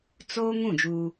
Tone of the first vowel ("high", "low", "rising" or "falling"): high